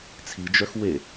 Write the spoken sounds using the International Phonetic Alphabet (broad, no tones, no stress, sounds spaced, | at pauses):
t͡sʰ i d͡ʒ œ x w e